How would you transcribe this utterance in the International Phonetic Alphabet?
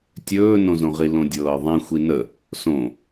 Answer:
tʲ ɵː n õ z õ ʁ i l õ dʲ ɤː ðˤ ĩ xʷ i n ə | s õ

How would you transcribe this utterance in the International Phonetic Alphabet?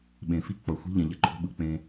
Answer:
ɓ ẽ˨ f i˦ k͡p ʌ˨ xʷ i̤˦ ʎ ɛ̃˨ ʎ ɛ˦ ǃʰ o̤˦ ɓ ɯ˨ k͡p ẽ˦

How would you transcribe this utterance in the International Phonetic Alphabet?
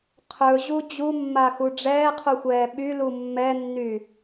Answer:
qʰ ɵ ʑ u d͡ʑ u mː a x u ɖ͡ʐ ɛː qʰ u xʷ ɛː ɓ y l u mː ɛ nː y

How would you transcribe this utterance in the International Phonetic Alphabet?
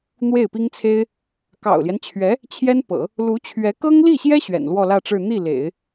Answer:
n̪ w e˥˩ ɪ̯ p i˥ ŋ t͡sʰ e˥ ɪ̯ | k ɑ̰˨˩ ʊ̯ l j ɛ˦ n t͡ɕʰ ɥ ɛ˧˥ | t͡ɕʰ j ɛ˥ n p ɤ̰˨˩˦ | l u˧˥ t͡ɕʰ ɥ ɛ˧˥ k ɤ˥ ŋ l i˥˩ ɕ j ɛ˥ ɕ ɥ ɛ̰˨˩ n l w ɔ˥˧ l ä˥˧ ʈ͡ʂ ɻ̩˥˧ n̪ i˥˩ l ḛ˨˩˦ ɪ̯

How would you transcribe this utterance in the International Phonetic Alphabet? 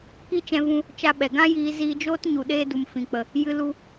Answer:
k i˦ t͡ʃ ɛ̃˧ v ũ˧ | t͡ʃ a˧ ɓ ɛ˨ ɡ ã˦ j iː˧ z iː˧ d͡ʒ oː˦ t ɲ u˨ ɗ eː˧ d u˨ m f ĩ˨ k͡p ə˨ | j ɨ˧ l u˧

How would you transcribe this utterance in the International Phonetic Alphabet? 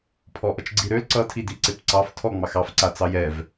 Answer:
pʰ ɔ ʔ ʌ t͡ʃ ɡ͡ǀ i ɾ ø l ǀ ʌ tʰ i d i ǀ e p ǀ ɑ f tʰ ɔ ŋ͡m ɑ x ɑ f ǀ a t͡s ɑ j ɛ v

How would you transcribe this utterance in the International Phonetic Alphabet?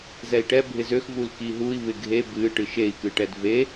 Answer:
z ɛ i̯ ʈ ɛ bʱ ɪ z ø x v u l k i ɦ u i̯ β ɪ ɡʱ e b ɨ ʈ ɨ ʃ e i̯ k ɨ ʈ ɛ d v e

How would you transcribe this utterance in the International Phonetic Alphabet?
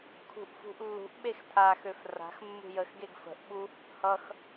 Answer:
kʰ ṳ ʔ f ṳ ʔ lː ṳ ʔ ɓ e x tʰ a x ø f r a̤ x mː ṳ j ə x ɡ e ɡ f ə̤ ʔ ɓ u | h ʌ x

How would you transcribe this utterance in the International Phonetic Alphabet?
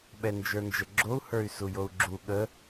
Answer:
ɓ ɛ n d͡ʒ ə˞ n d͡ʒ ə ɡ͡ǁ o u̯ h ə˞ y̯ s u j o u̯ ɡ͡ǁ u ɠ ə

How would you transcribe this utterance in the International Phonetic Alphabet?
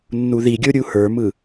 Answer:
nː u ð i ɡʲ o ɾʲ u h ə˞ m ɯ

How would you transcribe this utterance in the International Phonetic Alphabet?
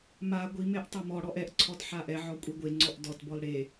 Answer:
m a ɡʷ i m e ʔ tˤ ɤ m ɔ ɽ ɔ ʔ ɛ ʔ ǀʰ ɔ d ħ a ʔ ɛ ʕ ɔ kʷʼ i ɡʷ e ŋ͡ǀ ɔ ʔ d ɔ t b ɔ l ɽ e

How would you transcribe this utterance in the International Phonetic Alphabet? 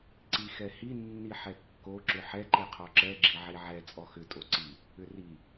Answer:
ǀ i x ɛ h i nː i ħ ɛ kː o ǁ ʏ ħ ɛ ǃ i qʰ ɔ ǁ ɛ ɡ͡ǁ i ʕ i ʕ ɛ t͡sʼ ɔ x ʏ tʼ o ǀ i | ʏ r i

